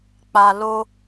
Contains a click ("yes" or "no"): no